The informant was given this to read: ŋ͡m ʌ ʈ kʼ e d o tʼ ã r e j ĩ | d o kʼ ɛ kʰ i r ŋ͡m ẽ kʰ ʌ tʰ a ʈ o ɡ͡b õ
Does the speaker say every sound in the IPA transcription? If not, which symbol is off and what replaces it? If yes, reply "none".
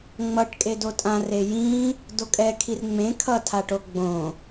none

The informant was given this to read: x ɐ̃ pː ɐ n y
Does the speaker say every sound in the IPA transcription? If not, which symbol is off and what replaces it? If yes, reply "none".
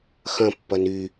none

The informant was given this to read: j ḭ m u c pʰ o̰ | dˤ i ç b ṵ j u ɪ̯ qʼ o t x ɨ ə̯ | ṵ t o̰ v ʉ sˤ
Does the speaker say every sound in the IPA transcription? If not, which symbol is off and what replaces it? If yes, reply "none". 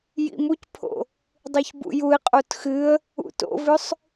none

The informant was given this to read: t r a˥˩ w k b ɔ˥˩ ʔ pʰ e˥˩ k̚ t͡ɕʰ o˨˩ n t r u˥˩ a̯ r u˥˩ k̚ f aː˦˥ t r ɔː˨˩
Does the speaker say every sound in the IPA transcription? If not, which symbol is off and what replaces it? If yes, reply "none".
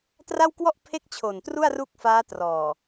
b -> w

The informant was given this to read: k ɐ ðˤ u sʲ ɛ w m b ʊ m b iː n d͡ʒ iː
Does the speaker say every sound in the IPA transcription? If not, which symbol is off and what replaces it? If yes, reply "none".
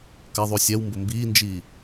none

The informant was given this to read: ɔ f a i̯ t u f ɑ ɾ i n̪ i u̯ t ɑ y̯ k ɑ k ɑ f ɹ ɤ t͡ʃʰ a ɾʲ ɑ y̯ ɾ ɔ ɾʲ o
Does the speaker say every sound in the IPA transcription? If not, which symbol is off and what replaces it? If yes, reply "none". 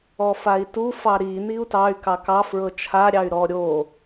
none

